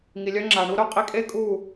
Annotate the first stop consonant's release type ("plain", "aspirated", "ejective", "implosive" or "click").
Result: click